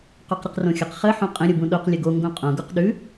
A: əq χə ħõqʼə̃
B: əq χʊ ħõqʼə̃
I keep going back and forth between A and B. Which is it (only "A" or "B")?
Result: A